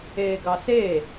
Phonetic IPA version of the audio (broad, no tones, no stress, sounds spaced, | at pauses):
eː ɡ ɑ s eː